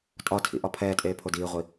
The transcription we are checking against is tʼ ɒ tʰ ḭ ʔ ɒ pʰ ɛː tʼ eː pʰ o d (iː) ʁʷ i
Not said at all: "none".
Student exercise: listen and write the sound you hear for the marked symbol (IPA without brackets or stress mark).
iː